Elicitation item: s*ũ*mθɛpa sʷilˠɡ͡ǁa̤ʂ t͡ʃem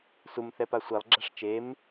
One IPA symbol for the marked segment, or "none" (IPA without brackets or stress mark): u